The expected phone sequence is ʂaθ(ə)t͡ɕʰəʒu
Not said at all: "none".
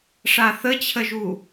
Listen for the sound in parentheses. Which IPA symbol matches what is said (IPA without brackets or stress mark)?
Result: ə